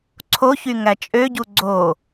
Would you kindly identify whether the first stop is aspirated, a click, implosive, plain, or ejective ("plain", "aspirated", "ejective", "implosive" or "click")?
click